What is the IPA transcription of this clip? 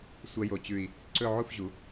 sʷ ɐ˥ j o˧˩ t͡ɕ ʉ˧˩ i̯ | ǀ ɵ˥˧ ʕ u˥˧ f ʑ u˩˧

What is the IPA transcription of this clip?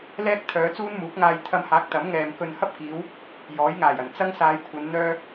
l ɛː˥ k̚ t̪ʰ œː˨˧ t͡s uː˥ n m uː˨˥ k̚ ŋ aː˧ j t̪ʰ ɐ˧ m h aː˨˥ k̚ t̪ ɐ˨˥ m ŋ ɛː˨ m k ɵ˨ n h ɐ˥ p̚ k iː˨˧ w | j ɔː˨˥ j ŋ aː˨˩ j ɐ˨˩ n t͡s ɐ˥ ŋ s aː˨˧ j kʷʰ ɐ˨˧ n n̪ œː˥

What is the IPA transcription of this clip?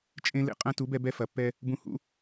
t͡ʃʼ ẽ˧ l ḛ˧ qʼ ɐ̃˦ t u˨˦ b ɛ˧ b ɛ˧ f ɐ˨ pː ɛ˧ | b ũ˧ h ṵ˦

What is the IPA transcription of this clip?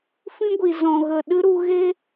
f ĩ˦ ɡʷ i˨ z ɔ̃˨ ɣ ə˨ ɗ ɨ˦ ɾ u˧ ɣ e˦

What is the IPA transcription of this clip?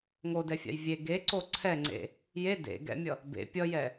ŋ o d ɛ fʲ a̰ j vʲ e ɡ e ǀ o ǀʰ ɛ ŋ͡ǀ ḛ | j e d ḛ ɡ ɛ̰ mʲ ʌ | b ḛ pʲ ʌ j ɛ

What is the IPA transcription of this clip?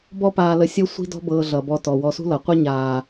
b ɔ˦ p aː˧ l ə˧ sʲ ɤ˦ sʷ i̤˦ d ɔ̤˦ b ɤː˧ ɮ ʌ˨ b ɔ˧ t ɔ˨ w ɔ˧ s ṳ˦ l ʌ˨ qʷ ʌ˦ ɲ aː˨

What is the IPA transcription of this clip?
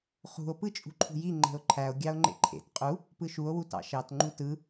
χ ṳ o̯ p ɯ t͡ʃʼ ṳ ǃʰ ṳ j i ŋ͡ǃ e̤ o̯ ǃʰ æ o̯ ɡʲ ɑ o̯ ŋ͡ǃ ḛ ǃʰ ḛ t qʼ u | p ɯ ʃ u o̯ w u t ɑ̰ ʃ ɑ t ŋ͡ǃ u t ɯ

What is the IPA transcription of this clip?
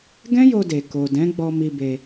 ɡ ɛ̃˦ j o˧ d e˨ k o˨ d ɛ̃˨˦ ɡ͡b ɔ˧ m i˧ b e˧

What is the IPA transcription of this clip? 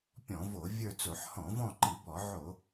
pʲ ɔ̃˧˩˧ v o˧˩˧ vʲ ə˞˦˨ t͡s o˧˩˧ ħ h ɔ̃˧˩˧ v ɔ̃˦˨ ǃ i˧˩˧ b ɔ˧˩˧ ʕ o˧˩˧

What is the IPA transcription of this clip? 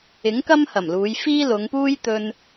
ɪ˨˥ ŋ k ɐ˥ m h ɐ˨˩ m l uː˨˧ j f iː˥ l ʊ˨˧ ŋ p uː˥ j t̪ ɵ˧ n

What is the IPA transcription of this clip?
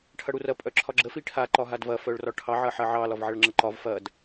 ʈʰ ɐ ɽ u r ɐ pʼ œ ǁʰ ɒ ɡ͡ǁ ə f i ʈʰ a ǃ ɒ ɦ a d v ɐ f œ ɭ r ɒ ʈʰ ɑ ʕ ɐ ħ ɐ ʕ ɑ l ɒ v ʕ ɐ ɭ ŋ͡ǁ ə ǃ ɒ v f ɐ d

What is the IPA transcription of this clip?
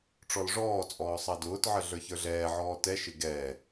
ʈ͡ʂ ɔ l ʐ ɔː t͡sʼ ɔː sˤ ɑ d ʊː t ʕ ə ɮ ə˞ ç ə˞ ɮ ɛː ʕ ɔː t ɛ ʃ ɪ ɡ ɛ

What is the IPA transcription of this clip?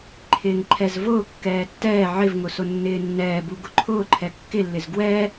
ǃʰ ɪː ŋ ǃʰ ɛ z v ʊː kː ɛː tː ɛː ʕ ɪ v ŋ ʊ s ʊ nː ɪː nː ɛː b u ɡ ʊ ǃʰ ʊː ǃʰ ɛ kː ɪ lː ɪ z ɡ w ɛ

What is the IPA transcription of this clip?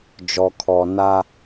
d͡ʒ ɔ˨ kʰ ɔ˨ n a˦

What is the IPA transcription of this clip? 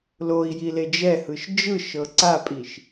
l o i̯ j i l e d͡ʒ ɛ h ɯ ʃ d͡ʒ ɯ ʃ ɤ ǀ a pʼ i ʃ

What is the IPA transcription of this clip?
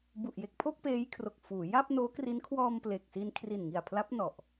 b u˨˩ ʔ j e˨˩ k̚ pʰ o˥˩ k̚ p eː˦˥ j kʰ r o˨˩ k̚ f uː˩˦ j a˥˩ p̚ n oː˦˥ k r i˦˥ n kʰ w ɔː˧ m p l e˨˩ k̚ s i˧ n kʰ r i˨˩ n ŋ i˨˩ a̯ pʰ l a˦˥ p̚ n ɔ˨˩ ʔ

